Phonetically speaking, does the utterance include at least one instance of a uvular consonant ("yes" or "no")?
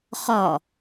yes